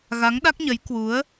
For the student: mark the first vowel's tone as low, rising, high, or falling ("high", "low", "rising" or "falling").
rising